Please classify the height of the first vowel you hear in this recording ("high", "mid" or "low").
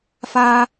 low